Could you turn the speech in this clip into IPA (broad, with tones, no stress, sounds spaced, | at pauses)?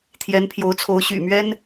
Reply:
t̪ʰ j ɛ˧˥ n pʰ j o˧˥ ʊ̯ t͡sʰ o˧˥ ʊ̯ ɕ y̰˨˩ m ɥ ɛ˥ n